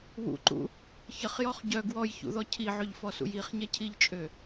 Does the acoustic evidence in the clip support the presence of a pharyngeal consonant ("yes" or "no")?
yes